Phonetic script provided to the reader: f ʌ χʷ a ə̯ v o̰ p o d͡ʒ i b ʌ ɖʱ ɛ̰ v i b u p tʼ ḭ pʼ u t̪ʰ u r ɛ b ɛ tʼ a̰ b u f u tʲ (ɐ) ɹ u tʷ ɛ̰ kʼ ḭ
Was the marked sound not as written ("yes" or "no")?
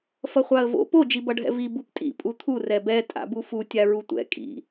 yes